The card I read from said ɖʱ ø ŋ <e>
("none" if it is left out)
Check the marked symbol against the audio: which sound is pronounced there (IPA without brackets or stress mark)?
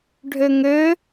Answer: ø